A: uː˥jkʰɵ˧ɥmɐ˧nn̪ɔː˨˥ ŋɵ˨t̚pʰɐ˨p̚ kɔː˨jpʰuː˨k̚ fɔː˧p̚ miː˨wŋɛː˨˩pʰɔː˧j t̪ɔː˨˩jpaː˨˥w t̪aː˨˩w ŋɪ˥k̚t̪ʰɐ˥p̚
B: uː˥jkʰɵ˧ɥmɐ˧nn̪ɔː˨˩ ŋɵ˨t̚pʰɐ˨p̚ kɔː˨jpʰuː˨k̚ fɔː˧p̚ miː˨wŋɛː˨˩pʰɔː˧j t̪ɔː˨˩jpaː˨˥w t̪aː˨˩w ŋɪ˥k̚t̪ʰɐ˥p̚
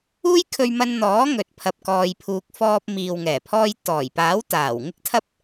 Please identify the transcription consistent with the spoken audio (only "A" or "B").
A